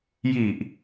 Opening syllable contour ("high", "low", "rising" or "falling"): low